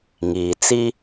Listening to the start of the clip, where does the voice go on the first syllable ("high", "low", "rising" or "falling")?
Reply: low